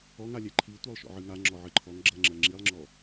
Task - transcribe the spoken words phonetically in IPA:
ɔŋalʲɛ ǃʰi tʷɜlˠʃɔ̰ʕɨŋa ŋ͡ǁɔʕɨǃʰɔŋ ɡ͡ǁʌŋ͡ǁɜ ŋ͡ǁilˠŋ͡ǁɔ

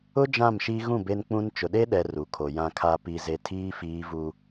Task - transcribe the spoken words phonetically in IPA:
ʊ˦ d͡ʒã˦˨mʃi˦ ɣũ˦˨ be˦nk͡pũ˦n t͡ʃʊ˨ɗe˦ɗɛ˨ ru˨kʰo˨ jã˨kʰa˨pi˨ ze˨tʰiː˦ fiː˦vu˦

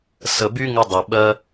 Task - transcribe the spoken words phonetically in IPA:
sə˨by˧ ŋɪ˧dˤy˨ɓɜ˧

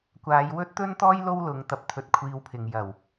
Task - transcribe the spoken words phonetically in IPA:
kʷaː˨˧jwɵ˥t̚t̪ɵ˥nt̪ɔː˥j lo˥wlʊ˨˧ŋt̪ɐ˧p̚ t̪ʰɵ˧t̚kʷʰiː˧wpʰɪ˨ŋ jɐ˨˩w

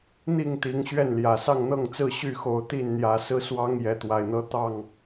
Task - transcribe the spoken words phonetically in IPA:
n̪i˥˨ŋt̪i˨˦ŋ ɕɥɛ˥˨nljä˨˩ sɑ˥˨ŋn̪ɤ˥˨ŋt͡sɹ̩˥˨ ɕy˥˨xo˨˦ʊ̯t̪i˥˨nn̪jä˨˦ sɹ̩˦swɑ˦ŋ jɛ˨˦t̪wa˨˩ɪ̯n̪ɤ˦ t̪ɑ˥˨ŋ

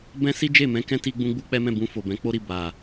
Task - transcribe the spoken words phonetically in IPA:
bɛ̃˦ si˦d͡ʒe˦˨mɛ̃˧kɛ̃˦ ti˦ɡ͡bũ˦ɡ͡bu˦k͡pɛ˦ mɛ̃˦˨bũ˧fo˨ bɛ̃˨˦k͡po˦ ɾi˦˨ba˨

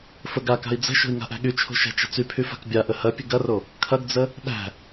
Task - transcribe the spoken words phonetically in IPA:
fəɡ aka̤i̯ d͡zə̤ʃo̤i̯ ŋa̤ʔæ̤ɠyt͡ʃʰo̤ ʃæ̤t͡ʃə̤t͡sypʰy fa̤kbʲaʔə hɐpʲə̤ ɡɐro | kʰɐɡd͡zə | ɗæ̤

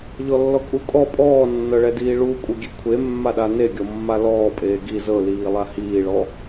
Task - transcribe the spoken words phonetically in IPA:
ʎɔlːɔkʼukʼɔ pʼɔːnːɤɭɛdiː ɭuːkʷʼɤɡʲekʷʰe mːaɗaneɡʲɔ mːalɔːpʼeː ɡi zɤliːlˠa hiːɭɔ

